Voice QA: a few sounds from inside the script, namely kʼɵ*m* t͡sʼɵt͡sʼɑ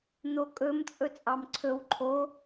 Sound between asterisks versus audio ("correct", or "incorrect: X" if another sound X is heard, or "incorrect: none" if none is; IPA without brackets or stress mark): correct